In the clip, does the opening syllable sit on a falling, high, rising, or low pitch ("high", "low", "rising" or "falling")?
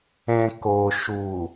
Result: low